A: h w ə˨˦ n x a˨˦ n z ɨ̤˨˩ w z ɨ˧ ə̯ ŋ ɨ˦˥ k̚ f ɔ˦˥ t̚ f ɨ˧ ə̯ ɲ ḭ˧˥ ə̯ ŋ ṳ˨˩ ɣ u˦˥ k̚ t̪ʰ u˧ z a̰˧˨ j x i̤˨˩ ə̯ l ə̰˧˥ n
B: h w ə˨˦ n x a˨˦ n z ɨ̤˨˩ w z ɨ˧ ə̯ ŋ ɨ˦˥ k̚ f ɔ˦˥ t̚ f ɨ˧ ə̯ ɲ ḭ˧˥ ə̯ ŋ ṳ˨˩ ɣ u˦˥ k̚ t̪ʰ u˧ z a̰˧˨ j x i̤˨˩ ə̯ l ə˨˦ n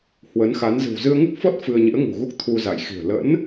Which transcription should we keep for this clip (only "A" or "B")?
A